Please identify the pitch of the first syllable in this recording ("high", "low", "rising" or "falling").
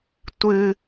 high